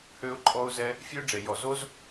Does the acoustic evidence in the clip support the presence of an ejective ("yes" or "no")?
yes